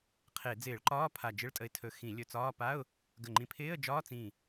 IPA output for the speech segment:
qʰ e˧˩˧ d͡z ɪː˧˩˧ ɭ ǃ ɒː˧˥˧ pʰ a˧˩ d͡ʒ ɪ˧˥˧ ɭ tʼ ə˧˩ ɪ̯ tʰ ɵ˧˩˧ x ĩ˧˩˧ lʲ ɵ˧˩ t͡s ɒː˧˥˧ p a˧˥˧ ʊ̯ | ɡ ə˧˩ ŋ͡ǃ ĩ˧˩ pʰ ɪː˧˥˧ ə̯ d͡ʒ ɒː˧˥˧ t͡s ĩ˧˩

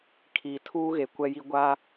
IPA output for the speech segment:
kʰ iː˨ tʰ uː˦ ɣ e˨ kʷ ɛ˦ j i˦ ɡʷ a˦

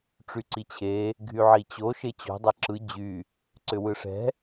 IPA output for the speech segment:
ʈ͡ʂ y ǀ i t͡ɕʰ e | ɡʱ y ʕ i t͡ɕ o ʃ e t͡ɕ o̤ dˤ e ǁ ɯ d͡ʑ y | ǀ ʏ w ɯ ʂ ɛ̤

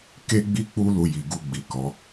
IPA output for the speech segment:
k e˦ ɡ͡b i˦ k͡p u˦ l u˧ j i˨ ɡ u˧ ɡ͡b i˨ k ɔ˨˦

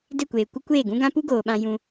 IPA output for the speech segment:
d e˦˨ kʷ eː˨ kʷ ə˦ kʷ eː˦˨ ɡ ũ˦ ɡ ã˦ p u˦ ɡ oː˨ ɓ ã˧ j ũ˧

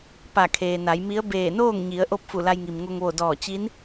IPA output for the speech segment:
p a˧˩ kʰ eː˩ n a˩˧ j m i˧˥ ə̯ b eː˧˩ n oː˥˨ ŋ ɲ i˩˧ ə̯ ʔ o˥˨ p̚ f u˧˩ l a˧ j ŋ i˩ m ŋ o˧ ŋ ʋ o˧˩ d ɔː˧˩ t͡ɕ i˧˥ n

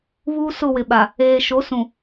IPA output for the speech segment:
β uː˦ s ʊ˦˨ w ɪ˨ ɓ a˨ | eː˨ ʃ o˨˦ s ũ˨

